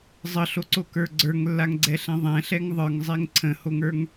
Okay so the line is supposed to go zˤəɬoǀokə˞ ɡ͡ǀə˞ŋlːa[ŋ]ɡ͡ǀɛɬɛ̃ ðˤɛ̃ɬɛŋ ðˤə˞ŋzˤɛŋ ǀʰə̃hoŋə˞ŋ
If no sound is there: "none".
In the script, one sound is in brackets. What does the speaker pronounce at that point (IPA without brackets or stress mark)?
ŋ